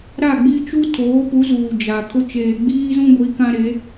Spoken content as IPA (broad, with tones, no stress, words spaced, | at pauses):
ɾa˦˨ɡ͡bi˦ t͡ʃu˦tʰoː˨˦pu˨˦ zuː˨d͡ʒa˨kʰʊ˦ t͡ʃeː˨ɡ͡biː˦zũ˦ ɡʷi˨˦kã˦ɾe˨˦